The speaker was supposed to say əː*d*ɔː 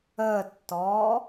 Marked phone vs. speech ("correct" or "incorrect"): incorrect